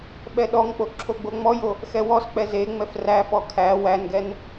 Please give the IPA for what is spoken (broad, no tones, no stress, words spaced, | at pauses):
ɓɛɗɔŋk͡po ǁʰoɡ͡boŋ͡mɔjo | xɛwɔsk͡pɛ ze ŋ͡mɛfræfɔ kʰæ wænɡɛn